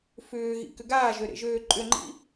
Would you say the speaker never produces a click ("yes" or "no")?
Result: no